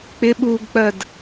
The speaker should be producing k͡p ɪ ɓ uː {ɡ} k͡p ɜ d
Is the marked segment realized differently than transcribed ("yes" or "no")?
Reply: no